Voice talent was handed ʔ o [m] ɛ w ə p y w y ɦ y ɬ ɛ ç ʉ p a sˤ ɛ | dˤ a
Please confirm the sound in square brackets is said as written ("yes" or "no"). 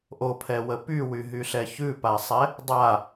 no